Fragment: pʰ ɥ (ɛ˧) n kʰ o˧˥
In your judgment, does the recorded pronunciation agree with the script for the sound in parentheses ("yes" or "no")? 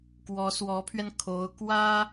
yes